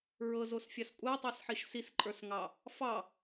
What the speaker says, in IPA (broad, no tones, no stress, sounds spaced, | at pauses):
ɹ ɤ z o s fʲ a s kʷʼ a tˤ ɑ s ħ i ʃ s i s ǃʼ ə˞ s ŋ ɑ | f ɑ